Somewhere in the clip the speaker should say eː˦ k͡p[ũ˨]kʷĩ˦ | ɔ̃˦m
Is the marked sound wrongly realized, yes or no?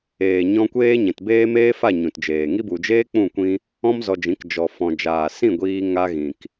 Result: yes